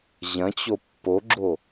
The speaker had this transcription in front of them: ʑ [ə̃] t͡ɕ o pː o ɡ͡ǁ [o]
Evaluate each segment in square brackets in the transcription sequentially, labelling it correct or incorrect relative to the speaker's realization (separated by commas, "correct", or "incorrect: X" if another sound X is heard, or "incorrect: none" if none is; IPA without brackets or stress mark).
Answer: incorrect: ɐ̃, correct